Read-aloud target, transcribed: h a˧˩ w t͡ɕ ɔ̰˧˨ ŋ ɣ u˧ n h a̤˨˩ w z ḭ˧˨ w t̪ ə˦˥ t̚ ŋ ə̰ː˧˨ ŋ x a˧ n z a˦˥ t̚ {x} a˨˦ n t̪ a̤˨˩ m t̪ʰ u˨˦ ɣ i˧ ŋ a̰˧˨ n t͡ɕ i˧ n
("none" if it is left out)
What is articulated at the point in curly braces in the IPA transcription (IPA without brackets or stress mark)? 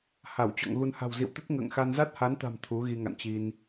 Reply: h